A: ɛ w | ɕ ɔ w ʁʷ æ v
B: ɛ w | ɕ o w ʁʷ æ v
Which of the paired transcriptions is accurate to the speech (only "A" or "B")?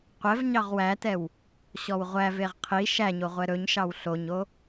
A